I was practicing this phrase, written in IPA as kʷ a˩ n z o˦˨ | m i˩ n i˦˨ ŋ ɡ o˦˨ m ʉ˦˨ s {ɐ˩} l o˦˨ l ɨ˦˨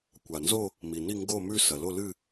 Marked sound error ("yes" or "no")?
no